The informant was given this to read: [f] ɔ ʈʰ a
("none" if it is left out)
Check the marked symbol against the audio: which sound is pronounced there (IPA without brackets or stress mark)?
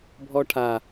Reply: bʱ